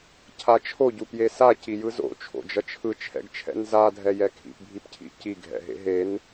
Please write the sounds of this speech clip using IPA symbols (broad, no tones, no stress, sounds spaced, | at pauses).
cʰ a t͡ʃʰ o ɟ u p j e s a c i j ɯ z o̰ t͡ʃʰ o̰ d͡ʒ ʌ t͡ʃʰ ɯ t͡ʃʰ ɛ̰ ɡ t͡ʃʰ ɛ̰ n z a dʱ ɛ j ɛ kʰ ḭ p bʱ i p cʰ ḭ c i ɡʱ ɛ̰ ɦ ḛ ɦ e n